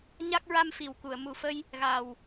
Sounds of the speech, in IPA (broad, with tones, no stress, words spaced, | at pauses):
ɲa˦˥k̚ ɹa˧m fi˨˩wku˨˩˨ə̯ mu˨˩˨fə˧j | ɣa˨˩w